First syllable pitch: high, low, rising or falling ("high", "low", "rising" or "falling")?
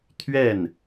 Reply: falling